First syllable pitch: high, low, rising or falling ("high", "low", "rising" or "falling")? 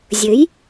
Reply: rising